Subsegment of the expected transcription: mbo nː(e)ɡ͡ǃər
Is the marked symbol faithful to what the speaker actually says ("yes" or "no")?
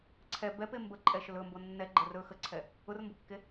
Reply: no